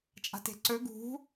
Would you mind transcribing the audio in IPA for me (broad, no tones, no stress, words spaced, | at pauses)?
t͡ʃʼa̤te̤ǀɵ ɡṳ